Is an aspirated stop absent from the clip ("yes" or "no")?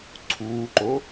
no